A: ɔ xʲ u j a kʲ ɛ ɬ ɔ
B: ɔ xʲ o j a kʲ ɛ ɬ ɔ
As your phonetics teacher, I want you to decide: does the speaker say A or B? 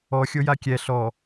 B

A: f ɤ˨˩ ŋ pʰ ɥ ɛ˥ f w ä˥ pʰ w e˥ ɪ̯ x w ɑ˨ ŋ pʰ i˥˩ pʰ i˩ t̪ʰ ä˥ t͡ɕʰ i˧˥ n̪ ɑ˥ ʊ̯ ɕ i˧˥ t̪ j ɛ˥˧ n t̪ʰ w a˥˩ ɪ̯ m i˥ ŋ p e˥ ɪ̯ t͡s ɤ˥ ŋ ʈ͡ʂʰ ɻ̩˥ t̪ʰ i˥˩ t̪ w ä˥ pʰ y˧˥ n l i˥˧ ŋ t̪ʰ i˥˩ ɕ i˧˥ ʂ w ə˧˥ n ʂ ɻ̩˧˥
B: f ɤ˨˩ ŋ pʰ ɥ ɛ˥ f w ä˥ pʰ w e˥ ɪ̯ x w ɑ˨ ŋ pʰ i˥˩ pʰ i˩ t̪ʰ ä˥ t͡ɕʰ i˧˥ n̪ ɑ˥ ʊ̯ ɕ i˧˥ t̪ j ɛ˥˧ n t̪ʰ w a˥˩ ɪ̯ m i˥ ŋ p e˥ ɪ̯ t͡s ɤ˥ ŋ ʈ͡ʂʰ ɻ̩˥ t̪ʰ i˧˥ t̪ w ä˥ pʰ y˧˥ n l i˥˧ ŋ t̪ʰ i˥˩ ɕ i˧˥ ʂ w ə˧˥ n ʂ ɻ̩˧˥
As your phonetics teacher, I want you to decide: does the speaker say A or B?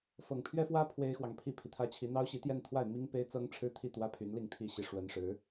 A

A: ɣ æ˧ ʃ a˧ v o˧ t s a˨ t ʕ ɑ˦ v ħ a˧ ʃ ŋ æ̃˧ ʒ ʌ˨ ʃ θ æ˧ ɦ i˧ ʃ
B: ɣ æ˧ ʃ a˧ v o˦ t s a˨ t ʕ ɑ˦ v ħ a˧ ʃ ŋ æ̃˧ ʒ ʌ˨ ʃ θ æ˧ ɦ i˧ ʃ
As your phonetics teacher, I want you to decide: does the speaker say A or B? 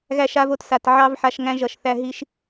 A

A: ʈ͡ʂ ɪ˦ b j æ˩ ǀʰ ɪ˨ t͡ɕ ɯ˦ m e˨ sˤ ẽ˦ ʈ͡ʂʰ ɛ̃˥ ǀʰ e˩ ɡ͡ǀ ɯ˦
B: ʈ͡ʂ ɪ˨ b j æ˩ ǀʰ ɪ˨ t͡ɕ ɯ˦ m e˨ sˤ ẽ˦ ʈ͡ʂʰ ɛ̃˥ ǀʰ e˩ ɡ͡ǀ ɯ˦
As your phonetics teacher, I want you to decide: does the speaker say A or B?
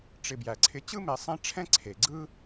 B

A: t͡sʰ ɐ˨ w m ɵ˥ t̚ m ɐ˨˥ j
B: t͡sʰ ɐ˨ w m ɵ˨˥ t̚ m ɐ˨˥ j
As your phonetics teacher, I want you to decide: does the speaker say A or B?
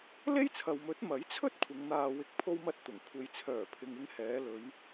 B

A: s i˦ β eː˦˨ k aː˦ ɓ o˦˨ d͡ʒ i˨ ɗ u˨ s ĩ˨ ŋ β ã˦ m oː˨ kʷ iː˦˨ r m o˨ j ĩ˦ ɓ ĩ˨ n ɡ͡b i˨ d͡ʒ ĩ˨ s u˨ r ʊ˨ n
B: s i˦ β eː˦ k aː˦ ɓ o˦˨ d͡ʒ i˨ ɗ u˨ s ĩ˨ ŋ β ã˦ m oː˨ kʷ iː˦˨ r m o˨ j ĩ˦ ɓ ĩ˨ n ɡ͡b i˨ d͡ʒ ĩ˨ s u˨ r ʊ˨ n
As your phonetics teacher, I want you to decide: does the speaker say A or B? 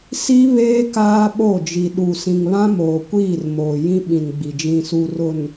B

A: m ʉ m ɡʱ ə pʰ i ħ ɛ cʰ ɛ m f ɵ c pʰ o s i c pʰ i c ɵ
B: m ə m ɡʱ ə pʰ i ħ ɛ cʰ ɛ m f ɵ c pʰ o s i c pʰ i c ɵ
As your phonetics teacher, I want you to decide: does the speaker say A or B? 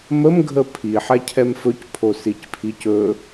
B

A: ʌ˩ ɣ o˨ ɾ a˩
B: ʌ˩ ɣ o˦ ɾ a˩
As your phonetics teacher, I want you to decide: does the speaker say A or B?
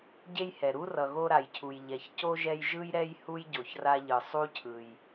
B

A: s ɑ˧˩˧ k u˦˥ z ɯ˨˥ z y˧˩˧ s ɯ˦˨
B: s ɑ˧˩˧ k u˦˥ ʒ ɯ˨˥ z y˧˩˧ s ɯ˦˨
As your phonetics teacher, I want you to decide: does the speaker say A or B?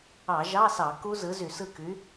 A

